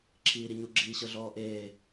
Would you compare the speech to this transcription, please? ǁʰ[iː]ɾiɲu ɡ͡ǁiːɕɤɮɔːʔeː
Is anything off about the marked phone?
no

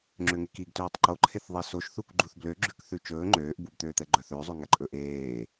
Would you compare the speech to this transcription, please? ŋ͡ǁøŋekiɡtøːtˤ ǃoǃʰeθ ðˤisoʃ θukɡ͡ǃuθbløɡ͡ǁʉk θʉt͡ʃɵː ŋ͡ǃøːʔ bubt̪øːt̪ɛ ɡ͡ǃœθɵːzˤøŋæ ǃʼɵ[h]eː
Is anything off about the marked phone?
yes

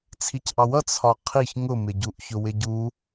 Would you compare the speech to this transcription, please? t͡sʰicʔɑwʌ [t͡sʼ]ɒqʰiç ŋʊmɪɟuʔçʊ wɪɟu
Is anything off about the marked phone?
yes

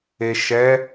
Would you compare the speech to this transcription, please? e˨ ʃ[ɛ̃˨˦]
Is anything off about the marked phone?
yes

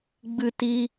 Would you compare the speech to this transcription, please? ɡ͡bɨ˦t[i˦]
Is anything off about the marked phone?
no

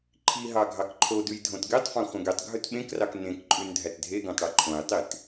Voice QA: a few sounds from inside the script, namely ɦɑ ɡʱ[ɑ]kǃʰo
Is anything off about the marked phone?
no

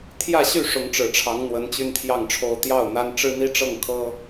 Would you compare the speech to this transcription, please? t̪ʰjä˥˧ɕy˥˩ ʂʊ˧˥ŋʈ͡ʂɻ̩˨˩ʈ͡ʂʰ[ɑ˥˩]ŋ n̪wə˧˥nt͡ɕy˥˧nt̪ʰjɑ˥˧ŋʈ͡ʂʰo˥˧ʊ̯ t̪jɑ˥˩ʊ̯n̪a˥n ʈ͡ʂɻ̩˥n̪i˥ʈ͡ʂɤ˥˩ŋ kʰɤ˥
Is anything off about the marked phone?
yes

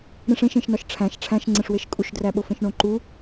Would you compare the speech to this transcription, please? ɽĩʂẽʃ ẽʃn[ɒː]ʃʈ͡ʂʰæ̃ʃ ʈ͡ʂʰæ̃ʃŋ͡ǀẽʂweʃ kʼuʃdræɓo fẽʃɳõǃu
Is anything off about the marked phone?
yes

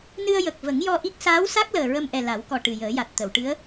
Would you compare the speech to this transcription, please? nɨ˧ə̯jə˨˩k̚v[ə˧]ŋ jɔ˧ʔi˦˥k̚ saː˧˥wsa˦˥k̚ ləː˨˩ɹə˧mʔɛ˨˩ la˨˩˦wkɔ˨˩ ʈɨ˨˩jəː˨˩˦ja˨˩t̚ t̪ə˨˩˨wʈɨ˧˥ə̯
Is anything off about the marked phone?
yes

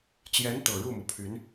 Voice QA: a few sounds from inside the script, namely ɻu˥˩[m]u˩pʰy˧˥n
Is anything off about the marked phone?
no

